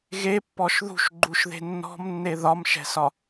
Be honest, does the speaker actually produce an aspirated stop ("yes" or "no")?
no